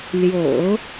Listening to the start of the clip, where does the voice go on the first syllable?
low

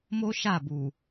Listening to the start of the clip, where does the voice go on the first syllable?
high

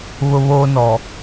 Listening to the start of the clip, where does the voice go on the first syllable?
high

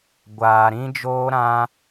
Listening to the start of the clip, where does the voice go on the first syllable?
low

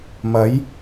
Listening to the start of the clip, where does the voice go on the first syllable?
rising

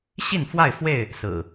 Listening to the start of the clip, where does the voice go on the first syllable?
falling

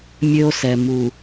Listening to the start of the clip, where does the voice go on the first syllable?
high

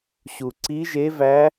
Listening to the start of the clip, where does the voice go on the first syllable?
low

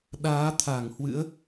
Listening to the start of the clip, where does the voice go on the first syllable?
rising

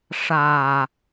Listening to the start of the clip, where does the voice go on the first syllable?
low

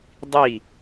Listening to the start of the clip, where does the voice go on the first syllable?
falling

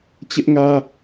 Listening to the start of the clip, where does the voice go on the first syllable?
high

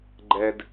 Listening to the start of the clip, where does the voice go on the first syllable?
low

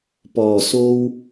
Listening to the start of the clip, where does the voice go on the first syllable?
low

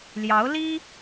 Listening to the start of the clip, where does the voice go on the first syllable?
rising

